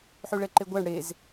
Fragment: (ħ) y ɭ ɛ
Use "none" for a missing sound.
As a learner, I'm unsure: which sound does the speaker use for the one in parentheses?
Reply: ħ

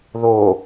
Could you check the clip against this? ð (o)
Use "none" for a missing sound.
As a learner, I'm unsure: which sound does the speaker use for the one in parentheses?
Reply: o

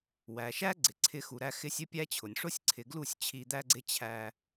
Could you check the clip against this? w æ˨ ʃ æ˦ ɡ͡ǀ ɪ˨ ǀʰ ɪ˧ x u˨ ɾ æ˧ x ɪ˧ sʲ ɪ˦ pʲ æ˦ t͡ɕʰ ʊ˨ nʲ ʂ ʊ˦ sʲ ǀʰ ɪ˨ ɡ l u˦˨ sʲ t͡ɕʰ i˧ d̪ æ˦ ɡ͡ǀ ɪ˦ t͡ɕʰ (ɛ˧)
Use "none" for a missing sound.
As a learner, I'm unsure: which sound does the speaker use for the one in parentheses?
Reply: æ˧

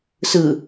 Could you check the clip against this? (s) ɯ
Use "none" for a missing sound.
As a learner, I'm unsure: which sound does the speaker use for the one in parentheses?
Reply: s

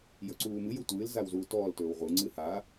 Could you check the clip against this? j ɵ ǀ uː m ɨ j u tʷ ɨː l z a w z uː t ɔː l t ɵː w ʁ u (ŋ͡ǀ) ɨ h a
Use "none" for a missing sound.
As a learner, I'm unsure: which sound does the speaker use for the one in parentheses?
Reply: ŋ͡ǀ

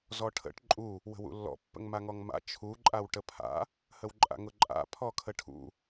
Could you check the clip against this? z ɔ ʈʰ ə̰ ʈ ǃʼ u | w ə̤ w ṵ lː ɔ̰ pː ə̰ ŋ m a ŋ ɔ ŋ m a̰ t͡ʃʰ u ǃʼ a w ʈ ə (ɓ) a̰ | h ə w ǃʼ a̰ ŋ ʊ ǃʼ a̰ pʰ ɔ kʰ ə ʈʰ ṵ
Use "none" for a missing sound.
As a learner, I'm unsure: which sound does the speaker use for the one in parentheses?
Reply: pʰ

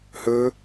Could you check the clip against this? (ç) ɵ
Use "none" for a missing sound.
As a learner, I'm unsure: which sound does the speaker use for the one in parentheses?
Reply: h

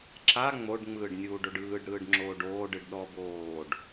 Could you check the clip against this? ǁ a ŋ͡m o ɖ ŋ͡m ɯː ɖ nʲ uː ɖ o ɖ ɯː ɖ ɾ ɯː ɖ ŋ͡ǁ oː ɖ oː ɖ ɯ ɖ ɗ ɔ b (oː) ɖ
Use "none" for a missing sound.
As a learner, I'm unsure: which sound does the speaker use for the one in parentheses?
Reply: oː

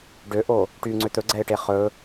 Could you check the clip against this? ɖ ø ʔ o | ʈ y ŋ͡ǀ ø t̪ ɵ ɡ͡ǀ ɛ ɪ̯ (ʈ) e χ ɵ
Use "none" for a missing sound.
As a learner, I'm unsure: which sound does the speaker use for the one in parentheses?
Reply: ʈ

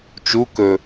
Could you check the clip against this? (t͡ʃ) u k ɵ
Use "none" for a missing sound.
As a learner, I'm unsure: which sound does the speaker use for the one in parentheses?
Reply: t͡ʃ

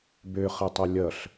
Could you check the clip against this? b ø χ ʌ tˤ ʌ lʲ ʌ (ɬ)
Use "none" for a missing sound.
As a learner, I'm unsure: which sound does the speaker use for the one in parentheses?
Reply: ɬ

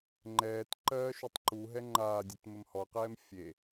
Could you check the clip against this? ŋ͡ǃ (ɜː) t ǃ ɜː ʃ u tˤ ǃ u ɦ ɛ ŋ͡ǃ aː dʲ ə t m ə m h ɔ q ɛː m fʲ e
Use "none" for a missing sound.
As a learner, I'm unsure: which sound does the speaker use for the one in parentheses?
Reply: ɛː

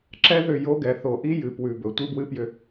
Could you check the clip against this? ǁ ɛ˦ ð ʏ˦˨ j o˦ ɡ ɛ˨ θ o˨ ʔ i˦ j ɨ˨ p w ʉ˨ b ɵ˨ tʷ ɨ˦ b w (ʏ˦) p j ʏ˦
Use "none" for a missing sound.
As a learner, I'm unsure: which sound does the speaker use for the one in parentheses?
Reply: ɨ˦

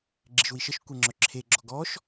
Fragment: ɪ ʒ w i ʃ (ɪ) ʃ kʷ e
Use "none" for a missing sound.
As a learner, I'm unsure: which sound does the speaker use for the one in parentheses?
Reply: ə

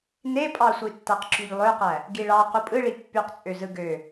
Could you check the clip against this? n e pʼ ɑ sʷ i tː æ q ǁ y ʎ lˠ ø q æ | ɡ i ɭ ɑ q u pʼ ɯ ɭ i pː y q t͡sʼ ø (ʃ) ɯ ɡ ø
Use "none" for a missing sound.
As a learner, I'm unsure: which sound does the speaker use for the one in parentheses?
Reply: z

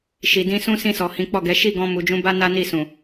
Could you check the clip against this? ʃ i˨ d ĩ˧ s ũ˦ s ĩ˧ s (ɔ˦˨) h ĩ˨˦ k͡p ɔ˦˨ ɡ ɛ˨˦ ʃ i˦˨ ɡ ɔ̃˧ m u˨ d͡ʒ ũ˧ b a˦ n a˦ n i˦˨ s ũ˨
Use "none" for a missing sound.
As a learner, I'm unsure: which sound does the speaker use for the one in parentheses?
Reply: ɔ˨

